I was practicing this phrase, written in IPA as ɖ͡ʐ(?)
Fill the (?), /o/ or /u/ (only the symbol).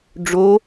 o